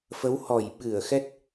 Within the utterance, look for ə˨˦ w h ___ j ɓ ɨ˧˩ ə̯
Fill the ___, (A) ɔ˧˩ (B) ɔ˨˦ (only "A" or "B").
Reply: A